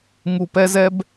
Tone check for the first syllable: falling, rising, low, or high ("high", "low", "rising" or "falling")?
low